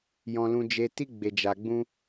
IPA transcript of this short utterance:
jɔ̃˧lũ˧d͡ʒe˧ti˦ ɡ͡be˧d͡ʒa˧ɡ͡bũ˦

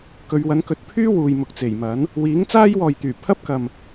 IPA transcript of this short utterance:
kɵ˨˧ɥwɐ˨˥n kɵ˨t̚pʰyː˥ wuː˨jmʊ˨k̚t͡se˨˩jmɐ˨˥n | wiː˨˥ŋt͡saː˥jwɔː˨j t̪yː˨˩ pʰɐ˥p̚kɐ˨m

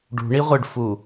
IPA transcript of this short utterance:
ɖṳ ɳiʁʷɨɖfu

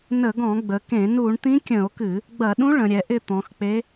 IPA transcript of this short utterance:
nə˧˩˧ɡɔ̃˧˩˧ɡ͡bə˩˧kẽ˧˩˧ nu˧˩˧ɳt̪ĩ˧˥kʲə̃˧˩˧o̯kɨ˧˩˧ | ɡ͡bɐ˧˩˧ɗũ˧˥ ɭə̃˩˧ɾʲɛ˩˧ʔɪ˦˨ t̪ɔ̃˩˧xk͡pe˧˥

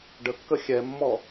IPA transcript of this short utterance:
ɖəkːə xʲɛmːɔ

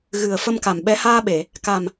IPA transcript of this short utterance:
ɣɨ˨˩ə̯ fə˧mka˨˩mɓɛ˧˥ haː˧ɓe˨˩˨ | ka˨˩m

